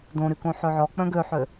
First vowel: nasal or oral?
nasal